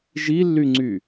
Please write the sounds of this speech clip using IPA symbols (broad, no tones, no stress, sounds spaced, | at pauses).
ʒ i lː y ŋ͡ǀ y